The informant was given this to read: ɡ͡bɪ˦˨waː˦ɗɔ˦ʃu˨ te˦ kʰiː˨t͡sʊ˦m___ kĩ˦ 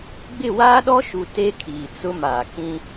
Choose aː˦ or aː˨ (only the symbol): aː˨